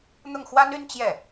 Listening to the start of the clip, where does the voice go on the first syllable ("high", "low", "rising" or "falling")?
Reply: falling